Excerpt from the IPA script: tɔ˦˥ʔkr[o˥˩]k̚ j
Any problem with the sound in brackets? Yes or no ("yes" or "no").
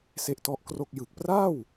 no